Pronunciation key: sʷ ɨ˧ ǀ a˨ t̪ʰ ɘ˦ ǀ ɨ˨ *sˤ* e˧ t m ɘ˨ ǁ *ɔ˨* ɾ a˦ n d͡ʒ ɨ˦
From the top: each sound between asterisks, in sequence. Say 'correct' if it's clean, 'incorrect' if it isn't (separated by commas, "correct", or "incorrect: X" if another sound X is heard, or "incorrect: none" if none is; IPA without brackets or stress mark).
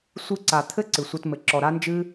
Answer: incorrect: sʷ, correct